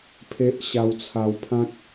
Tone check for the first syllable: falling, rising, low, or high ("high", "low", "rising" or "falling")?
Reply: high